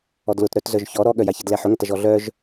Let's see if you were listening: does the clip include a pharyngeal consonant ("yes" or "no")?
yes